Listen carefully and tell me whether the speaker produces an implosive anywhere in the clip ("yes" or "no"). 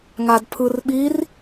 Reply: yes